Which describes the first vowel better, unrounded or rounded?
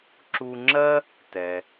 rounded